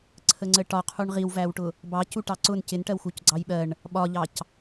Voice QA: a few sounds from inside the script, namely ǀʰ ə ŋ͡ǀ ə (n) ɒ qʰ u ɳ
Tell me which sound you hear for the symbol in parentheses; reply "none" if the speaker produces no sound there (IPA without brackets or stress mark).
ʈ